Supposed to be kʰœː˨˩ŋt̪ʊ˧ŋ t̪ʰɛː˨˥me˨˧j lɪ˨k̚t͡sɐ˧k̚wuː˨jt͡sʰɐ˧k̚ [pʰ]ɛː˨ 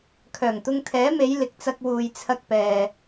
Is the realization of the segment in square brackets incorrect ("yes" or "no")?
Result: yes